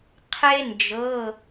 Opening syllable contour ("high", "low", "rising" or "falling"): high